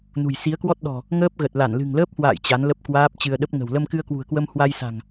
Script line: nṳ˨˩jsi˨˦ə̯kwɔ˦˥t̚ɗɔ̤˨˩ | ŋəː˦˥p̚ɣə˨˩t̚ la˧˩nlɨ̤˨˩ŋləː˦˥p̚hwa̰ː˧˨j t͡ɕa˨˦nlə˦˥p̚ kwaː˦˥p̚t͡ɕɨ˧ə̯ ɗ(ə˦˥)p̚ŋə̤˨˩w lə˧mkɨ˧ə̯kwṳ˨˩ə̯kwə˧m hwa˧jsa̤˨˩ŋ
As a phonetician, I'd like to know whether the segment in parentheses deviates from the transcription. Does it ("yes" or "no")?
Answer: no